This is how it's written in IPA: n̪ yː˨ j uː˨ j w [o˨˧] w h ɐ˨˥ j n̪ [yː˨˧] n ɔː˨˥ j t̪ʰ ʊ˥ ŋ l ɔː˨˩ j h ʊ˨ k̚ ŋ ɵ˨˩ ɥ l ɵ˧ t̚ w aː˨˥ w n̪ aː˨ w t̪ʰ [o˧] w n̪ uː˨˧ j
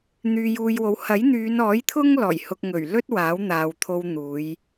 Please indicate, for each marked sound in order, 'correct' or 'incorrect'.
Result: incorrect, correct, correct

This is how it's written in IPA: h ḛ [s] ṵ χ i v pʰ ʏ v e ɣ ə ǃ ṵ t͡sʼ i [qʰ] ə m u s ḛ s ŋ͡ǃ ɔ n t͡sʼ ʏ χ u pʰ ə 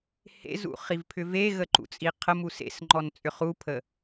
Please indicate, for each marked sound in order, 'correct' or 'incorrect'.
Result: incorrect, correct

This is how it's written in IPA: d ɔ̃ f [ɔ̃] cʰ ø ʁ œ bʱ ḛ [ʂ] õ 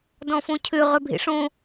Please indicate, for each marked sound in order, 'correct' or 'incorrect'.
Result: incorrect, correct

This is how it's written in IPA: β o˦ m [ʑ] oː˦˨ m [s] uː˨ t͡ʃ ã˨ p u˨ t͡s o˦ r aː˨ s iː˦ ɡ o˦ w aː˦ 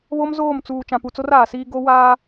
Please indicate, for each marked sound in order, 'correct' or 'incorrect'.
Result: incorrect, incorrect

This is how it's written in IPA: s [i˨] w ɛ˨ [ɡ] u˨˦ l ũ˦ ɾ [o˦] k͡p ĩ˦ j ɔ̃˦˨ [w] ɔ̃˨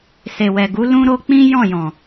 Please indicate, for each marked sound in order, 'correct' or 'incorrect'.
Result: incorrect, correct, correct, incorrect

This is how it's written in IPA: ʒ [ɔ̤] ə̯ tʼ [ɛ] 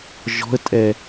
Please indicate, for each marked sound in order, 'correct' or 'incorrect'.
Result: correct, correct

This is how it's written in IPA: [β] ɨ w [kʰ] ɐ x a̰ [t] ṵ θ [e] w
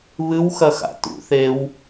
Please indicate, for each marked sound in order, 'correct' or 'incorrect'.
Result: correct, incorrect, correct, correct

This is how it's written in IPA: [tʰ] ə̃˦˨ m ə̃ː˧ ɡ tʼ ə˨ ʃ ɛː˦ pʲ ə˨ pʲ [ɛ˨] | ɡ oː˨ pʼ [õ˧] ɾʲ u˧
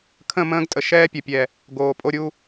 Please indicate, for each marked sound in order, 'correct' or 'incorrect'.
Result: incorrect, correct, incorrect

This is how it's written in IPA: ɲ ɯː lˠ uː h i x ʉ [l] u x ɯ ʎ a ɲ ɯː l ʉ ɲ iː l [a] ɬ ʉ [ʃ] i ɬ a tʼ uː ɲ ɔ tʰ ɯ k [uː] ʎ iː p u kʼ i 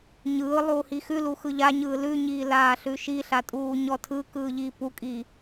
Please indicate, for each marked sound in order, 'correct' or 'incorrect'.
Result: correct, incorrect, correct, incorrect

